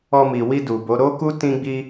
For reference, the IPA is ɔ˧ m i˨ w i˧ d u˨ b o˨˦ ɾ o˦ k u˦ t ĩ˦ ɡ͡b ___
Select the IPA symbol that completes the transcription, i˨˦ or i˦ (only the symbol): i˦